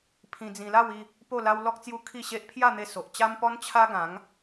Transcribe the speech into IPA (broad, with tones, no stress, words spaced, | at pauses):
pʰĩ˧d͡zĩ˧la˥˧w i˥˧ | po˥˧la˦w lɔ˦k̚t͡sju˦ kʰi˥˧ɕe˦ʔ pʰja˥˧n̪e˧so˨ʔ t͡ɕa˦mpɔ˦n t͡ɕʰa˦ɡã˨˦ŋ